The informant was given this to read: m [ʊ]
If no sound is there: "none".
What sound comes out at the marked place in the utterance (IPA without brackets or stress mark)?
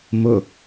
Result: ʊ